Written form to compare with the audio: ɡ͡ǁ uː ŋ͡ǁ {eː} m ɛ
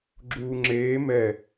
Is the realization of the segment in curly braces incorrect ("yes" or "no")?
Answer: no